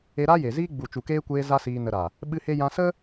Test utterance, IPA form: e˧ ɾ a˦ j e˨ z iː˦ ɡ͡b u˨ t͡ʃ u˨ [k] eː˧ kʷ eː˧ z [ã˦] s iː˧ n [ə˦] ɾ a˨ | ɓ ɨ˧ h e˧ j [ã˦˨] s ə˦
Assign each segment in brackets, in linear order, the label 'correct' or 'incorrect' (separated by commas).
correct, incorrect, incorrect, incorrect